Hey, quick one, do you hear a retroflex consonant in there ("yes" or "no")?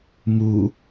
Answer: no